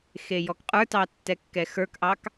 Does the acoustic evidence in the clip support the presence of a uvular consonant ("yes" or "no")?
yes